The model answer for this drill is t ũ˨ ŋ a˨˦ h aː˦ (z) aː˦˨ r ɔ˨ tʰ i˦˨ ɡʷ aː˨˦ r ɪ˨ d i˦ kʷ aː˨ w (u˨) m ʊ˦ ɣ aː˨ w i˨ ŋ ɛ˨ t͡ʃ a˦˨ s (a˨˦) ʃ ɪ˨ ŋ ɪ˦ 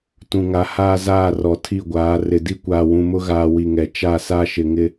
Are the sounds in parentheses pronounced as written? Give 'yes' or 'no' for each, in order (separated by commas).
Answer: yes, no, no